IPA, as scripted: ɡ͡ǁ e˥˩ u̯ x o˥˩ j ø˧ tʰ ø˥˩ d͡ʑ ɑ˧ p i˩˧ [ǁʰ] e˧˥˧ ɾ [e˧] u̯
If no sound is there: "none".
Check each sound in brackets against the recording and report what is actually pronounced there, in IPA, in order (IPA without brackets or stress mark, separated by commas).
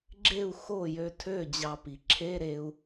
ǁʰ, e˧